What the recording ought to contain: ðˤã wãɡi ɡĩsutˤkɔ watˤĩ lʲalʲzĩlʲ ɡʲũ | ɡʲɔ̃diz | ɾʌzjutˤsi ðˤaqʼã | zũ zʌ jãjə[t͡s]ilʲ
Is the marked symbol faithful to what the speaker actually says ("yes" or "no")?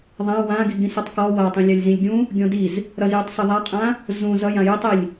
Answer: no